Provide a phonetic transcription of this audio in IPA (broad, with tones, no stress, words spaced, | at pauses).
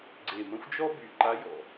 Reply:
ɡ͡ǀe˨˩mə̃˧˥xʷ d͡ʒɔ˥by˨˩ǃa˧˥ jɔ̰˨˩